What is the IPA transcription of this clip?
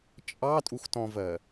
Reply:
t͡ʃʼ ɑ tʼ u x t ɔ̃ v ɜ

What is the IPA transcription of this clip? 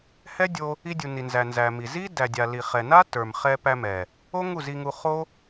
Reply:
h ɛ˦ dʲ o˧ | i˧ dʲ u˨ n i˨ n z æ˨ n z æ˨ m i˨ z i˦ d æ˨ dʲ a˨ l i˨ χ ɛ˨ n a˦ t ə˞˨ m χ ɛ˧ p æ˧ m ɛ˨ | o˦ ŋ u˦˨ z i˧ ŋ u˧ χ o˦

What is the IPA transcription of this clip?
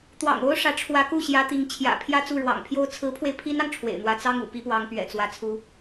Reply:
t̪ w ɑ̰˨˩ ŋ o˥ ʊ̯ ʂ ä˧˥ ʈ͡ʂʰ w ä˧˥ k u˥˩ ɕ j ä˧˥ t̪ i˧˥ ŋ t͡ɕʰ j ä̰˨˩ pʰ j ä˥˧ t͡s u˥˩ ɻ w ɑ̰˨˩ ŋ pʰ j o˥ ʊ̯ t͡sʰ ɹ̩˧˥ pʰ w e˧ ɪ̯ pʰ i˥ n ɑ˨ ŋ ʈ͡ʂʰ w ḛ˨˩ ɪ̯ n̪ w ä˧˥ t͡s ɑ˥ ŋ ṵ˨˩ p i˧˥ p w ɑ˧˥ ŋ p ɥ ɛ̰˨˩ t͡s w ä˥ t͡sʰ u˥

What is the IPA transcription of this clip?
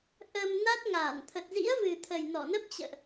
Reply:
ʔ ə˧ m n a˦˥ t̚ ŋ aː˧˩ n t̪ʰ ə˨˩ t̚ z ḭ˧˥ ə̯ v ɨ˨˩ t̪ʰ ə˨˩ j n ɔ˧˩ n ə˦˥ p̚ t͡ɕ ə̰ː˧˨ ʔ

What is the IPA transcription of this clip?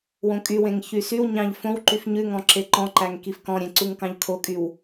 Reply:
w õ kʼ y w ẽ ŋ ç y s y w ɲ ɑ̃ ʎ f õ w ǃ y f ɲ ʉ ŋ ɔ̃ ǁ e ǃ ɔ̃ ǃ æ ŋ k i f k ɔ̃ ɾʲ ẽ ǀ u ŋ k ɑ̃ ʎ kʰ o kʼ y w

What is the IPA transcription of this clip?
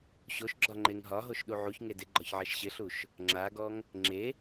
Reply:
ɕ o ʃ ɡ͡ǁ ɒ ŋ͡ǃ e ŋ ɦ ɒ ɦ o ʃ ɗ u ʕ u ç ŋ e d ɪ ɡ͡ǃ ɒ ç ʕ ɛ ʃ ɕ ɪ ɬ u ʃ | ŋ͡ǁ a ɡ ɔ ŋ | ŋ͡ǁ e

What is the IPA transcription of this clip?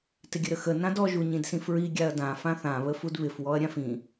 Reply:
t ɪ ɡʲ ə ɾ ə x ə n ã d ɔ ʒ u ɲ ĩ d s ĩ f ɹ i ɡʲ a ɐ̯ d ã f ã θ ã β ə f u d β ɪ f w ɔ ɐ̯ ɾʲ ã f ĩ

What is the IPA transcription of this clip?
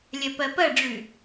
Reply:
lʲ ɐ p ɐ p ɐ ɖ͡ʐ ʉ

